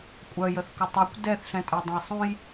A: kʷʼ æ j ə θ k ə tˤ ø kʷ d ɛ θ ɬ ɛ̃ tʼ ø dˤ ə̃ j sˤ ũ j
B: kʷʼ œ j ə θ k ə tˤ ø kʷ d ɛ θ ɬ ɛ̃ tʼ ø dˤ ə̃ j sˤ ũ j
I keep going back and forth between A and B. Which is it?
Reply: B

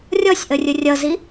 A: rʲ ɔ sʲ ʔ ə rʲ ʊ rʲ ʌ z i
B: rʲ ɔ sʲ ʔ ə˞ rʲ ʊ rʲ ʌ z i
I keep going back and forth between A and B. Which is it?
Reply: A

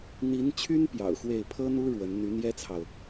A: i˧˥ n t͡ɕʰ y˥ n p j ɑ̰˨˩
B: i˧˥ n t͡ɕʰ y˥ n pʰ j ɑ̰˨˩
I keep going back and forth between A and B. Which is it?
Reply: A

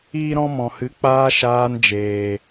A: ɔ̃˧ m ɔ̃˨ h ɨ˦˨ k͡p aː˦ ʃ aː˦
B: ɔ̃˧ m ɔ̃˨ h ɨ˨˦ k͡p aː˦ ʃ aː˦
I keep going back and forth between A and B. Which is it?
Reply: B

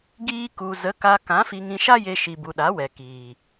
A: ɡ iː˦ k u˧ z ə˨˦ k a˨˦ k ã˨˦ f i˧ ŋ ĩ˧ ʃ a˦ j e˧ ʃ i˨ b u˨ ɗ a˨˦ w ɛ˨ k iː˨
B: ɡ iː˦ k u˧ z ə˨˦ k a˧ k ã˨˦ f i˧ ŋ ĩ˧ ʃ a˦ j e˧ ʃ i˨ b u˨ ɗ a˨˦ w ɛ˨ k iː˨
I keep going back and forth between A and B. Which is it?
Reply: B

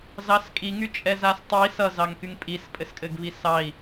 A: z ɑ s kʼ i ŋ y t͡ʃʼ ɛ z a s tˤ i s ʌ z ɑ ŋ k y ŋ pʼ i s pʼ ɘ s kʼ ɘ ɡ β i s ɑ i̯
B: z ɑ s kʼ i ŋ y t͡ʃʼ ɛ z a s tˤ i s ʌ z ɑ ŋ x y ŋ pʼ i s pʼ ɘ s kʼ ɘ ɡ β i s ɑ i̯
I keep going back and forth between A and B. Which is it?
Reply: A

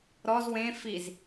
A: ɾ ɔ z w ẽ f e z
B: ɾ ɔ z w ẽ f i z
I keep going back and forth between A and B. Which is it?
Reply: B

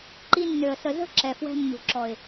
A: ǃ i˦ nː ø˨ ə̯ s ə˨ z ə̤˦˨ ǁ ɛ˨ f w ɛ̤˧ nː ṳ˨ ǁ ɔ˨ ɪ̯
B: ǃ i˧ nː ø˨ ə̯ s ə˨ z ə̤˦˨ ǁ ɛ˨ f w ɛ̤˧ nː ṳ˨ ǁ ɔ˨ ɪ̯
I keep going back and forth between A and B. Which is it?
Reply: B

